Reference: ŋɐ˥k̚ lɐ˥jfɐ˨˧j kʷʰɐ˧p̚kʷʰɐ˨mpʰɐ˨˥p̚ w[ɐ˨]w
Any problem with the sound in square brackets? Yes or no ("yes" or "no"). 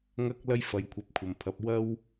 yes